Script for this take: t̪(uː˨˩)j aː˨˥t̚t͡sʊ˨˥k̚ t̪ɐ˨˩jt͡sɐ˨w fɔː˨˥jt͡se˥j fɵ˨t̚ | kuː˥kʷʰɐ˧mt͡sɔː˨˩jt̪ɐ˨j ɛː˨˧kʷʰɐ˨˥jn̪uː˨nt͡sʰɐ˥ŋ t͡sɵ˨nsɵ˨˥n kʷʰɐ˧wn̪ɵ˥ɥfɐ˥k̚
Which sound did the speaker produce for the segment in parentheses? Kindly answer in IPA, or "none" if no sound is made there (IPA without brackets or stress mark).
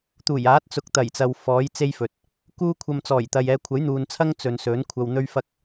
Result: uː˨˩